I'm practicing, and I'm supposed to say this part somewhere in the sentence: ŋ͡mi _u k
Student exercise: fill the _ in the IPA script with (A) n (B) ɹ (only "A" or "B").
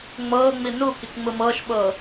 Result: A